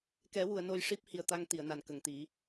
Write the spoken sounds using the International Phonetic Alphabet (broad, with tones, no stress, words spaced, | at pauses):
kɛ˨˩˦wu˨˩˨ə̯ no˧j ʂi˦˥p̚hi˨˩ə̯t̪a˧ŋ t̪i˨˩˨ə̯na˨˩nkə˨˩˨ŋt̪i˨˩˦